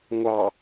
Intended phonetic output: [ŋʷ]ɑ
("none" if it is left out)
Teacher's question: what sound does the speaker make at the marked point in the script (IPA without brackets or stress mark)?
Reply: ŋʷ